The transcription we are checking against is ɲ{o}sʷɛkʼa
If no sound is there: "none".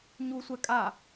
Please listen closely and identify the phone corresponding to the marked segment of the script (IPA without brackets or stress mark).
u